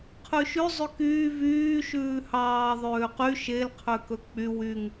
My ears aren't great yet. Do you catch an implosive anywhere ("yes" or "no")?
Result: no